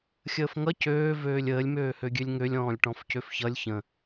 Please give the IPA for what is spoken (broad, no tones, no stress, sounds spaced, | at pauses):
xʲ əː f ŋ ʌ c øː v øː lʲ əː lʲ m øː h ø ɡʲ ø lʲ ŋ ø lʲ ɔ̃ː lʲ ʈ ɔ̃ f c ø f ç ʌ lʲ ç ə̃